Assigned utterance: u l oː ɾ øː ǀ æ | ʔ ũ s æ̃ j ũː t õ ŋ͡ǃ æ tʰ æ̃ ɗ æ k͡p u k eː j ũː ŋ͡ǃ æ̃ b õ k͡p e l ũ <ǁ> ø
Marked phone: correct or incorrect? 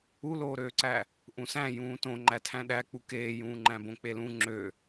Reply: incorrect